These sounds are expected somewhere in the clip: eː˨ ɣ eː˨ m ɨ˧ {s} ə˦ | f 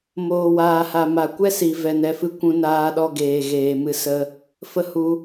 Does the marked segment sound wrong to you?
no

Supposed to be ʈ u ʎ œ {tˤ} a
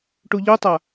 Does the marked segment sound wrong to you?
no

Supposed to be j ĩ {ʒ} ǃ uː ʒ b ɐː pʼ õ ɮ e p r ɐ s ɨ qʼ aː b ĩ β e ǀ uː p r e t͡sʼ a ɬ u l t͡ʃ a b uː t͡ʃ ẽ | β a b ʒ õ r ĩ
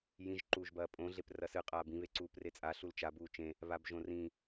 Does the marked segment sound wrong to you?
no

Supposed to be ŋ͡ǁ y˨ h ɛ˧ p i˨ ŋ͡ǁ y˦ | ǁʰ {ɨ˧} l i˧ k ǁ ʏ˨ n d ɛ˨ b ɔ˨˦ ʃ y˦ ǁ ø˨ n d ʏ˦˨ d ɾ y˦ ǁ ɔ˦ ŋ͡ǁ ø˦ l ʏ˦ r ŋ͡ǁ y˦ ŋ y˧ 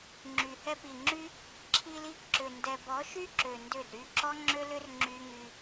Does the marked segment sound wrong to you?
yes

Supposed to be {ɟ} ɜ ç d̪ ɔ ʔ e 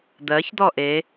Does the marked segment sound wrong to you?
yes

